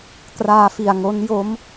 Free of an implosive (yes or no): yes